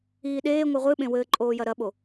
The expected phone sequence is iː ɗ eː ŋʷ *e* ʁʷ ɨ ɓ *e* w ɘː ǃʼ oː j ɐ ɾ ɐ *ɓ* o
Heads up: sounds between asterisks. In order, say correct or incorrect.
incorrect: ɨ, incorrect: ẽ, correct

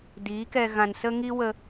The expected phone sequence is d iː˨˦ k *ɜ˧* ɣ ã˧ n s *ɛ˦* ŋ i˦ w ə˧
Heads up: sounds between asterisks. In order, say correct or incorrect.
incorrect: ɛ˧, incorrect: ə˦

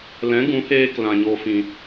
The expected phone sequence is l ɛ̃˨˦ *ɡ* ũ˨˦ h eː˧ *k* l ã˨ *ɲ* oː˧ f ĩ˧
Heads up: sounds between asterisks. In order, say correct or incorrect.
correct, correct, correct

